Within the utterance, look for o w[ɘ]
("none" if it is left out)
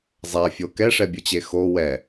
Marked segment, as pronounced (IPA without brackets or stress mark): ɛ